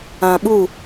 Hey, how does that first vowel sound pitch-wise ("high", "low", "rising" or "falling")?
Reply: low